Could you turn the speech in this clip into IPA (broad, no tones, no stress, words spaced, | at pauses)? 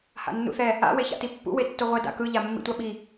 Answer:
ha̰nːṵθɛ | a̰ weça̰tipːṵ wetːoʁʷɛ da̰kɯ ʎamːḭtʷaɓi